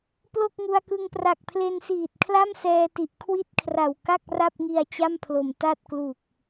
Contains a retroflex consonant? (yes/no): no